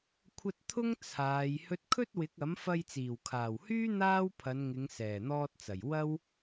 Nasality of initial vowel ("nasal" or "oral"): oral